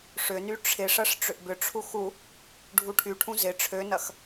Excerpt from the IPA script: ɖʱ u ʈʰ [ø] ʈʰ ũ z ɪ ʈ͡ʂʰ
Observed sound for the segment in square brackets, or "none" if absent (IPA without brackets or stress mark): y